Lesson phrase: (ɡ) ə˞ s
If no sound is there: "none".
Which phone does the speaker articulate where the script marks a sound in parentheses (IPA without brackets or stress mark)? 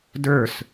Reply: d